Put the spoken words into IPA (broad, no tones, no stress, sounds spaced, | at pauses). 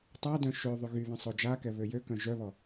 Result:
tˤ a d œ̃ ʃ ø ðˤ y ɣ y β œ̃ sˤ o d͡ʒ a k ɛ β ø j ø k œ̃ ʒ œ β ɔ